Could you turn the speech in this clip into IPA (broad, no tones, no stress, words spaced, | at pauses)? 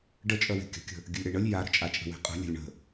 ɖət͡ʃʼœwe̤ kʲə̤kʲə̤ | ɡʲəlʲɾeɳəlʲ jaɾə̤t͡ʃʼat͡ʃʼə̤ we̤qʼə̤ lʲə̤lʲɳə̤